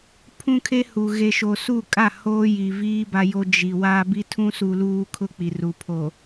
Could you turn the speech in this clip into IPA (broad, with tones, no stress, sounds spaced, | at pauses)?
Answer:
pʰ ũ˦ kʰ e˦ h u˨ ɣ e˨ ʃ o˨ s u˦˨ kʼ a˦˨ h oː˦ j i˨ v iː˦ b a˦ j o˦ d͡ʒ i˨ w a˦ b i˦ tʰ ũ˦ s u˨ l uː˦ kʰ ʊ˦ k͡p i˨ r u˨ pʰ o˨